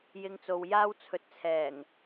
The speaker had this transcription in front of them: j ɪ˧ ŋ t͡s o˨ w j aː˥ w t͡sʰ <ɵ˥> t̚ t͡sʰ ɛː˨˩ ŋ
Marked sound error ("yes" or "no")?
yes